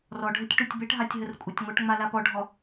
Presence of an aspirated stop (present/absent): absent